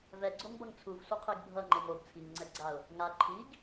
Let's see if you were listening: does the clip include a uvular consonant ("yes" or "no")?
yes